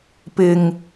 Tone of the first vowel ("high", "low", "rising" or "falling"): high